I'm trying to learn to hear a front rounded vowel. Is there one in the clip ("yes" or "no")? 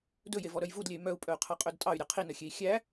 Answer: yes